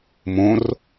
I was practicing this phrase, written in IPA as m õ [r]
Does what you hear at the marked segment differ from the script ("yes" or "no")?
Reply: no